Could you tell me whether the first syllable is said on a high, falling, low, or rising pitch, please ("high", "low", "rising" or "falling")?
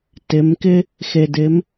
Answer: rising